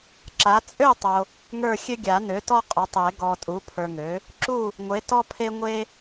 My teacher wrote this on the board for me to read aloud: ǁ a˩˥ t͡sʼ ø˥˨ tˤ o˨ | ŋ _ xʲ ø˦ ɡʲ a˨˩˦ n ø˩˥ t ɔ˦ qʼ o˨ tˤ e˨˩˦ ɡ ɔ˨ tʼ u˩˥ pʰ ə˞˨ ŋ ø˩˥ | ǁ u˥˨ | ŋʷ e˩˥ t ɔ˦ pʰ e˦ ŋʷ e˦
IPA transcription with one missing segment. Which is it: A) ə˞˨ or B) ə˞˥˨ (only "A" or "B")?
B